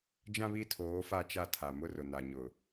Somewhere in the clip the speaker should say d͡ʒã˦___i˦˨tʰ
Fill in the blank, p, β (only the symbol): β